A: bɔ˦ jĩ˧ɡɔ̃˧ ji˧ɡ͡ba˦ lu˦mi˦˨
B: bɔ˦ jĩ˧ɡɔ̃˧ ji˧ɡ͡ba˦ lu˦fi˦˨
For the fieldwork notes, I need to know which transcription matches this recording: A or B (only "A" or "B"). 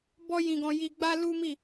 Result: A